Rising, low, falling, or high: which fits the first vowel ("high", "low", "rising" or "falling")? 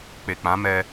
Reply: low